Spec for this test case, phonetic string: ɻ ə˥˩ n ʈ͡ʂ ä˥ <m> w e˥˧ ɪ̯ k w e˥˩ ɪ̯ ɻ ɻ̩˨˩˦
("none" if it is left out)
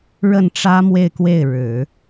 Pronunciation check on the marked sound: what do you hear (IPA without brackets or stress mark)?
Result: m